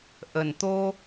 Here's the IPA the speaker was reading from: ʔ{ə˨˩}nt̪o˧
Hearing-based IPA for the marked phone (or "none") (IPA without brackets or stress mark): ə˨˩